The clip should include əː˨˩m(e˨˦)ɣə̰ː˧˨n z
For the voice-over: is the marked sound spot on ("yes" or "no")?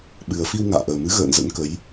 no